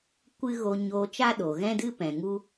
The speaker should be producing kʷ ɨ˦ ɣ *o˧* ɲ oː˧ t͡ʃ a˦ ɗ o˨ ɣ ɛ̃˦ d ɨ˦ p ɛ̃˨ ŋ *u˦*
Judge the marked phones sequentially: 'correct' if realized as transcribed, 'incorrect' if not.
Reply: correct, correct

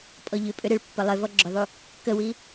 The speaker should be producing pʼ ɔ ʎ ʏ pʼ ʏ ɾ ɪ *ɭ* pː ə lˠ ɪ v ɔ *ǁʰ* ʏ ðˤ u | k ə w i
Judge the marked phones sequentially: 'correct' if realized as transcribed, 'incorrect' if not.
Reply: correct, incorrect

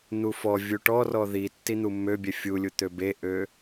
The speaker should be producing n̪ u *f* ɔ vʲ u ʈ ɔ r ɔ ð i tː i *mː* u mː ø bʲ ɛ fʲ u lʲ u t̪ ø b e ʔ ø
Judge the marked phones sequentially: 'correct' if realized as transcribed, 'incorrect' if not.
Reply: correct, incorrect

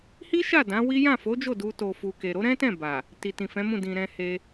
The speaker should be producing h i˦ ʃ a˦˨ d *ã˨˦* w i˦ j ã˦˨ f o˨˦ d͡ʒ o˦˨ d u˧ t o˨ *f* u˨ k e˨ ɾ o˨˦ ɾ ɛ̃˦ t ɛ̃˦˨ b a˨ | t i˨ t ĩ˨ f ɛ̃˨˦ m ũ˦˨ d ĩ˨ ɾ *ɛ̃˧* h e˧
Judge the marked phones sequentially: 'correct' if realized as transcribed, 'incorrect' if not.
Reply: correct, correct, correct

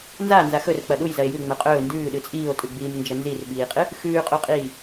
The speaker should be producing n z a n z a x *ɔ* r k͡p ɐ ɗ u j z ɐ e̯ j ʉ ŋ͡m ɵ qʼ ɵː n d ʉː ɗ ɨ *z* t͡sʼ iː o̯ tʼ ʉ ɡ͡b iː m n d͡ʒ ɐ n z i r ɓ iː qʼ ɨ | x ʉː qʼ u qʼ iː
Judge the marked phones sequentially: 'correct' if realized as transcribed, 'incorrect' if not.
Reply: incorrect, incorrect

